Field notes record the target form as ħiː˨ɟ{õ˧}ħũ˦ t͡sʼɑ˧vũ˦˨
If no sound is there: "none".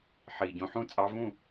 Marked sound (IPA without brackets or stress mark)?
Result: õ˧